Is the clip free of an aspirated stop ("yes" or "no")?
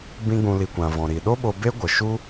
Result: yes